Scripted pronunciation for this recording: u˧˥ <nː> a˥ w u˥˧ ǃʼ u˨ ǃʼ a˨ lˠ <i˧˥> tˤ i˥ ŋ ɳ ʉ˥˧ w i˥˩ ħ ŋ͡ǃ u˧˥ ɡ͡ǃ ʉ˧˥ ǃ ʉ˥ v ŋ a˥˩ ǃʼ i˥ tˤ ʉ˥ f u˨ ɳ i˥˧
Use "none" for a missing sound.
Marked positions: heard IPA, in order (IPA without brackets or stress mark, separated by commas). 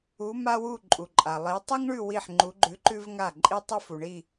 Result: m, i˧˥